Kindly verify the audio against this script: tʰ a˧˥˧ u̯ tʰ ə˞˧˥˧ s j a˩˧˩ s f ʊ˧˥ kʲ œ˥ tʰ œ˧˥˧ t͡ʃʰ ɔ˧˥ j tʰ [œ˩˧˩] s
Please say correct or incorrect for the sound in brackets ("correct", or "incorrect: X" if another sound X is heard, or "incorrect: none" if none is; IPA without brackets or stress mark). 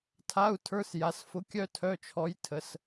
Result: incorrect: ə˩˧˩